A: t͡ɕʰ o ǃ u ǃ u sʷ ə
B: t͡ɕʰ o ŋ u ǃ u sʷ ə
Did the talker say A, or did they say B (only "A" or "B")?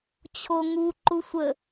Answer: B